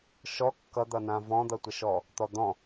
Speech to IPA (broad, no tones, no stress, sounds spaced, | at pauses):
ʃ ɔ kː ʌ d̪ ʌ n ã v ɔ̃ d̪ ʌ tʷ ə ʃ ɔ | t̪ ɔ d̪ ɔ̃